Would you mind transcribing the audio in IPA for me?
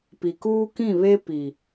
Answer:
p i˨ k uː˦ k ĩ˦˨ β e˦ p i˨

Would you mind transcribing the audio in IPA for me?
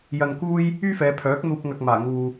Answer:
j ɐ˧ n k uː˥ j | yː˥ f ɛː˨˧ pʰ œː˨˥ k̚ n̪ uː˧ p̚ ŋ ɐ˧ k̚ m aː˨˩ ŋ uː˨

